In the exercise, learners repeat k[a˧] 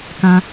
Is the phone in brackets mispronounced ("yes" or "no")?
yes